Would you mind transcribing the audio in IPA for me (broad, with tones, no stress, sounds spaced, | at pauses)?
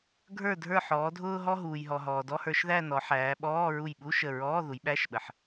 ɡʱ ə˞˧˩ dʱ ə˞˧˩ ħ ɔː˩˧ dʱ ʊː˧ ɦ ɔ˧ ɦ uː˩ j ɦ ɔ˩ ɦ ɔː˩ d ɔ˧˥˧ h ə˞˧ ʃ ð æ˥˧ n ɔ˩˧ ħ æː˩˧ ɓ ɔː˧˥˧ ɹ u˧˩ j ɓ u˧˥˧ ʃ ə˧˩ ɹ ɔː˧˥˧ ð u˩˧ j ɓ æ˧˥˧ ʃ ɓ ə˩ ħ